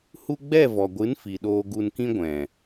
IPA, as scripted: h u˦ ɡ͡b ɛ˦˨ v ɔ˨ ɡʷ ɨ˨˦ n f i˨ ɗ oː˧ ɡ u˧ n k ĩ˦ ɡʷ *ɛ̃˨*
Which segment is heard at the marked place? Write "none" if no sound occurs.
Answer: ɛ̃˨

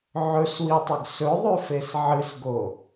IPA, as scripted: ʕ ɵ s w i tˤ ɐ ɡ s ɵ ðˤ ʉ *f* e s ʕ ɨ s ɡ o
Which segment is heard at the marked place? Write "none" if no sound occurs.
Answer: f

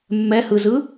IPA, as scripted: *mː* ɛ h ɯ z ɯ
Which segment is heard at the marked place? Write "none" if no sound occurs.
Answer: mː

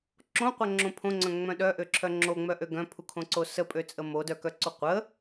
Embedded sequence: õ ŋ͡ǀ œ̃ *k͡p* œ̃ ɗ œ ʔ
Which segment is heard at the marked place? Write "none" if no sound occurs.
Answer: ŋ͡m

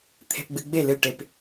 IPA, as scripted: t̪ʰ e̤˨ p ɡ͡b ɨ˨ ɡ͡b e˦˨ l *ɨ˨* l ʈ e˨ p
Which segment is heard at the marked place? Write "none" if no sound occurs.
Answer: ɨ˨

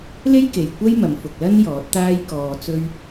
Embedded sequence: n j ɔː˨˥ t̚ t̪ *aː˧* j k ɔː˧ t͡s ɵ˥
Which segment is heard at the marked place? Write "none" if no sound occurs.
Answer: aː˥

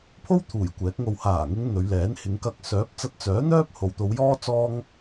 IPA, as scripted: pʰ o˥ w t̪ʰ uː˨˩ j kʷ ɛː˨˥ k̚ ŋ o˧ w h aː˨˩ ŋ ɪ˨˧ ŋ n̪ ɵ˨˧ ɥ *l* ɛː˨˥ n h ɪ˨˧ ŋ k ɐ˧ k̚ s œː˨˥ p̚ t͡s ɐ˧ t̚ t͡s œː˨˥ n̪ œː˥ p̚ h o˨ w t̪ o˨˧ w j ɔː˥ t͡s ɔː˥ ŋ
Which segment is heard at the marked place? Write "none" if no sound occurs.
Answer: l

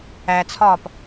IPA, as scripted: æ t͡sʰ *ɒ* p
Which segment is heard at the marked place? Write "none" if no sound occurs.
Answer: ɒː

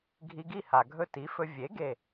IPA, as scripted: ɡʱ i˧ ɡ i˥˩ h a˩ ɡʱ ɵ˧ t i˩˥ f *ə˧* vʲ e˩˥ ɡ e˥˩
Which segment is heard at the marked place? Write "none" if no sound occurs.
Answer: ɵ˧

